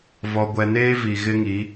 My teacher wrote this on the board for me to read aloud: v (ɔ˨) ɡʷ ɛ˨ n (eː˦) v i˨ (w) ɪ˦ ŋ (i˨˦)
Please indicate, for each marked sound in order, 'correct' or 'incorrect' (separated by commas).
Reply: correct, correct, incorrect, correct